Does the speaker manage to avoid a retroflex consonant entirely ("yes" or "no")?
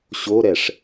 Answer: no